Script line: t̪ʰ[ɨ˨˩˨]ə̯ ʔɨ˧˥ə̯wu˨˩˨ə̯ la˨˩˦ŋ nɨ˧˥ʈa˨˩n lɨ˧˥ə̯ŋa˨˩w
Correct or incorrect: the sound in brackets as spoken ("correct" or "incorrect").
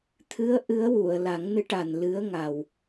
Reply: incorrect